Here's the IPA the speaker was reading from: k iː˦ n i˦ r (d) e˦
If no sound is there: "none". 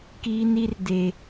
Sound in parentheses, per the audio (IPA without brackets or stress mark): d